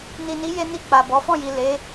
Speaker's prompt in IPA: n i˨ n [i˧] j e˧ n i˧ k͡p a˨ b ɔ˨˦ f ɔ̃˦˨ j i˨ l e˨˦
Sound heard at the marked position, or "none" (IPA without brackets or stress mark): i˨˦